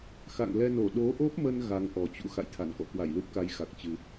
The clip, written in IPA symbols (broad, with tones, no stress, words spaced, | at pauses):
xa̰˧˨ŋlɛ˧no˧˩ ɗo˨˦ʔo˦˥p̚mə˧n ɣa˨˦ŋʔɔ˨˩t͡ɕṵ˧˥ xa̰˧˨jt̪ʰa˧˩nkɔ̰˧˨ kwa˧˩jlu˦˥p̚ka˨˦jxa˨˩k̚ t͡ɕɨ˧